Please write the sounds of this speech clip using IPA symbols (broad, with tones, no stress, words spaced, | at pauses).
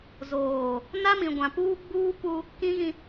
zoː˨ | na˦mĩ˨ɡʷã˨puː˦ ɡ͡buː˦pu˦ | kĩ˦ɣĩ˦